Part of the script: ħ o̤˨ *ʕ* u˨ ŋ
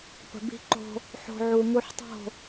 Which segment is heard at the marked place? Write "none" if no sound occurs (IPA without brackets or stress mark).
ʕ